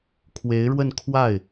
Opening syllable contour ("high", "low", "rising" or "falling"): rising